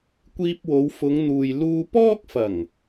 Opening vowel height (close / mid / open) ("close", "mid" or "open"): close